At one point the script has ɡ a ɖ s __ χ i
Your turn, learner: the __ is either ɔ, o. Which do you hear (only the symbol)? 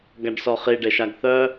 ɔ